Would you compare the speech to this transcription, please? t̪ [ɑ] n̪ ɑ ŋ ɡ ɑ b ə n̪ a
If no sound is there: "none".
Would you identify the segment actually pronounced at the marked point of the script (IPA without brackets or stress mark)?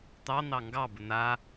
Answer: ɑ